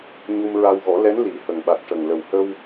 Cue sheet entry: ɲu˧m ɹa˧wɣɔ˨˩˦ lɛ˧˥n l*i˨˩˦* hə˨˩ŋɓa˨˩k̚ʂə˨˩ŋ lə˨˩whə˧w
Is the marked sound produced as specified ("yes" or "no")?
yes